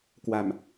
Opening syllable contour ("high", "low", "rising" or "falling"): low